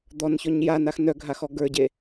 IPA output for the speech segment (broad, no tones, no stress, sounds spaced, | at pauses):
d̪ ɔ n ç ɔ ɲ j a n a x n œ ɡʱ a x ɔ ɡ ə˞ ɟ e